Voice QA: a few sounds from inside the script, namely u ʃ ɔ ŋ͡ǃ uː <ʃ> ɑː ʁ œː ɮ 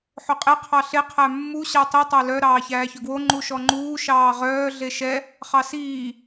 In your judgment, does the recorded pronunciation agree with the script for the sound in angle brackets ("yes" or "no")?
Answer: yes